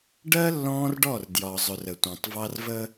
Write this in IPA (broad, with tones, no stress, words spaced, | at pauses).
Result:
ɖɜ˦ lːɔ̃ː˦rɖɔ˦˨r djɒ˨zˤʊ˨r ə˨tʷæ̃˨tˤ vɑ˦r və˦